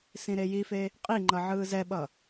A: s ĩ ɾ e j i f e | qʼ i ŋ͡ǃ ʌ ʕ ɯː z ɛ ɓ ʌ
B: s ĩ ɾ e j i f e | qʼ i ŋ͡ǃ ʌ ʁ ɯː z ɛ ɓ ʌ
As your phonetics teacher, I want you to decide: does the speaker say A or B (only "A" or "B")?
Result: A